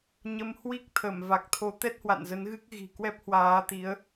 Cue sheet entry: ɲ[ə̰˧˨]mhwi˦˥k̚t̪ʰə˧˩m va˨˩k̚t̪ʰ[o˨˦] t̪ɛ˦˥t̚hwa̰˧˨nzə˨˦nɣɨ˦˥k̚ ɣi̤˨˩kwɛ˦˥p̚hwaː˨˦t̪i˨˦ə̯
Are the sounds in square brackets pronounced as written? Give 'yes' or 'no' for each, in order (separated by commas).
no, yes